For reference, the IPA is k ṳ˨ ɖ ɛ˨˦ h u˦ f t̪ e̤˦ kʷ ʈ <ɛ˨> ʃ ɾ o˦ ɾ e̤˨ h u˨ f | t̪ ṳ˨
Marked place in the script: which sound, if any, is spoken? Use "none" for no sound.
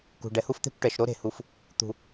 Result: ɛ˨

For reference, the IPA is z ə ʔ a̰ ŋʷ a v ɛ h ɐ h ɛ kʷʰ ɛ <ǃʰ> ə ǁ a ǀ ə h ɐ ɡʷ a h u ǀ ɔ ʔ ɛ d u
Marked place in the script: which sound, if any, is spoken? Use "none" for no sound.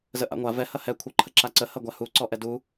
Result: ǃʰ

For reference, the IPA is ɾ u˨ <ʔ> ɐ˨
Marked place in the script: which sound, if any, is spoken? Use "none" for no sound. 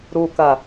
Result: k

